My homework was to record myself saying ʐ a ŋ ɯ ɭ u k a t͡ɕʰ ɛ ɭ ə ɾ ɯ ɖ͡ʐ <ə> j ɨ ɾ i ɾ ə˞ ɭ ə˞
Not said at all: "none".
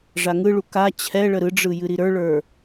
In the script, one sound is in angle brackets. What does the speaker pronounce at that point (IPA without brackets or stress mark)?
ɯ